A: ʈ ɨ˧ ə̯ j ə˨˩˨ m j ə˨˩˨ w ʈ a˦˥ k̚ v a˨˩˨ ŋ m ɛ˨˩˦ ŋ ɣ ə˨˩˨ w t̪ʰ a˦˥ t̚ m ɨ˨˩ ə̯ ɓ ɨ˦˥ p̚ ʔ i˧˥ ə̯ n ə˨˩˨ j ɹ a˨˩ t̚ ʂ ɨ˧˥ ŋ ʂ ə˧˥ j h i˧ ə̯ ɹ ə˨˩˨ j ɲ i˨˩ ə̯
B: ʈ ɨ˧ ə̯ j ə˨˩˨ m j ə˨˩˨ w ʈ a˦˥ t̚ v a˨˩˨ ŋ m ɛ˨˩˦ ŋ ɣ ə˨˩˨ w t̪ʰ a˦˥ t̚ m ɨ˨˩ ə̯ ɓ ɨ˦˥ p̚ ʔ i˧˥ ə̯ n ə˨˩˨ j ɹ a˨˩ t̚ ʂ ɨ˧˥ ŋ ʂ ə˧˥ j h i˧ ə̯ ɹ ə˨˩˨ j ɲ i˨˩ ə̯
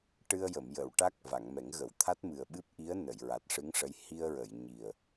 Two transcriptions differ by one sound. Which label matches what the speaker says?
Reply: A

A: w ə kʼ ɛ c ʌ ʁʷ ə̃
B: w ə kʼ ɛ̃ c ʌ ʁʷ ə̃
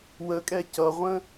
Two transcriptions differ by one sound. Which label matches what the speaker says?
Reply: A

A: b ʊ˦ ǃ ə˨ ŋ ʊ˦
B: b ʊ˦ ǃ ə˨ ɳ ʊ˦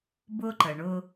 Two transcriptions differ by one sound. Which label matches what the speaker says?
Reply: B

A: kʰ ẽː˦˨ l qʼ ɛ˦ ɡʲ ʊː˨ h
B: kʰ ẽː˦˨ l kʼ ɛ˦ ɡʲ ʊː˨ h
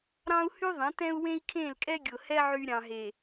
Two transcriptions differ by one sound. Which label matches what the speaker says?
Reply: B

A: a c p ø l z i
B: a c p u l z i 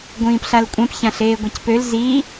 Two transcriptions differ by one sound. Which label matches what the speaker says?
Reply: A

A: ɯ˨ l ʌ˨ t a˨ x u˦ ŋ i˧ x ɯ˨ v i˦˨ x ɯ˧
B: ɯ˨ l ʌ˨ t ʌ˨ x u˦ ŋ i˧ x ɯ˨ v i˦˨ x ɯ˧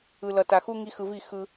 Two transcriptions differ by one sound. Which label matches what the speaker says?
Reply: A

